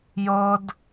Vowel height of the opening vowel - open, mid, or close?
mid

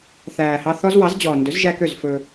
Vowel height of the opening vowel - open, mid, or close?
open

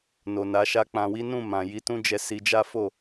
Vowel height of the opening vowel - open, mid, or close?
mid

